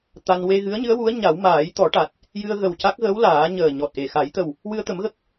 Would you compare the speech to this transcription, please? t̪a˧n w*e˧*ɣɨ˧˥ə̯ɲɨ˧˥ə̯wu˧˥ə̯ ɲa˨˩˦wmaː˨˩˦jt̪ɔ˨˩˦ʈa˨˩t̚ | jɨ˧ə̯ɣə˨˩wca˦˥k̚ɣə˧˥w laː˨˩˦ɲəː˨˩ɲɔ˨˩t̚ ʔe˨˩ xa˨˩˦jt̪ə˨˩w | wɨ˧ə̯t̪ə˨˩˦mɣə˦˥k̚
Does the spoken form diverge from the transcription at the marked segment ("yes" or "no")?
no